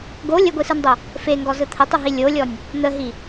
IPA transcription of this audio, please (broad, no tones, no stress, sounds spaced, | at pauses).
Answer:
ɡ o lʲ ə ɡʷ i s ɯ n dˤ o | f e ŋ ɡ ɔ z ɯ t̪ʰ ə tˤ ɯ ɦ i lʲ o lʲ ɔ nʲ | n̪ ə ɦ i